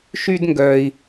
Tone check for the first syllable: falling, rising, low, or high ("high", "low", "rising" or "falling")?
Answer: high